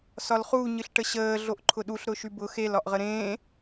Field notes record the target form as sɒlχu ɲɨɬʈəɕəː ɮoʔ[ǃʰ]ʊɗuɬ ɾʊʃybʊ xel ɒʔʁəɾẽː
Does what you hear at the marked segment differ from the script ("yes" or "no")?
no